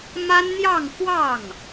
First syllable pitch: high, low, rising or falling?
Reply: high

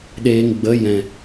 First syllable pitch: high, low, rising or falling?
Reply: low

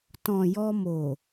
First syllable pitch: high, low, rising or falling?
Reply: low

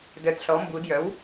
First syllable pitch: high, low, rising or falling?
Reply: low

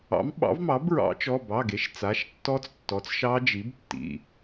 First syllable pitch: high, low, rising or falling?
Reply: rising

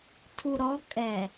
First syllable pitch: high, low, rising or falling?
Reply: low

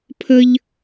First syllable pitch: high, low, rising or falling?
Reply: high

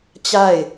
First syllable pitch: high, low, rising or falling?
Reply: falling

